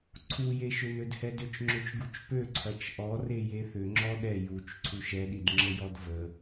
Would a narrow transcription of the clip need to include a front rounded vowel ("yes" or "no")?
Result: yes